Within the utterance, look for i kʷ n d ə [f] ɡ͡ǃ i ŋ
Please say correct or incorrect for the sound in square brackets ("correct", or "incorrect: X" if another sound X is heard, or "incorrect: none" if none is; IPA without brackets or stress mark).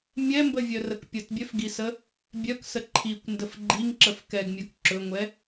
correct